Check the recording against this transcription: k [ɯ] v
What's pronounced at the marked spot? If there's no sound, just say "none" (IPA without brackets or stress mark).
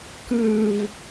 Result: ɯ